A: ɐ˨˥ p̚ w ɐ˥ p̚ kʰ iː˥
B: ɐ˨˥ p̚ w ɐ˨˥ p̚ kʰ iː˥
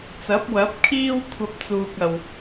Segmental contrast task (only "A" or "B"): B